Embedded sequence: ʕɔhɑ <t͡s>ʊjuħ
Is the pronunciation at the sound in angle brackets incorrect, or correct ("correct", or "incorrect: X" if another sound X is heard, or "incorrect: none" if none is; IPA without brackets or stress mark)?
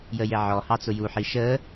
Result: correct